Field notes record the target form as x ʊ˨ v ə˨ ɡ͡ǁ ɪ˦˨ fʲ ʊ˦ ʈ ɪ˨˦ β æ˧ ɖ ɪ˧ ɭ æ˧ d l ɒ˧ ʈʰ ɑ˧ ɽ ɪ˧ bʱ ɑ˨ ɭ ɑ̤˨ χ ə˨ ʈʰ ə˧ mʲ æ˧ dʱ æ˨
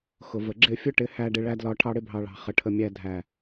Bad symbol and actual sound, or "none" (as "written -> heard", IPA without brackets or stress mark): β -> h